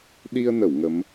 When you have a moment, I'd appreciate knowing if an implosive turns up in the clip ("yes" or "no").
yes